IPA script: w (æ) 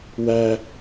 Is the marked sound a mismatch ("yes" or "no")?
no